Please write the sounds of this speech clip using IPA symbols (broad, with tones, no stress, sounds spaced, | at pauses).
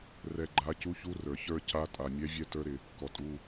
r ɛ˦˨ ɡ͡ǃ a˧˥ c u˧˥ ç u˧˥ r ə˞˩ ç ə˞˦˨ c a˧˥ tʼ a˩˧˩ mʲ ɛ˧˥ vʲ ɛ˧˥ t ə˞˧˥ ɾ ɪ˩ | k ɔ˩ tʼ u˩˧˩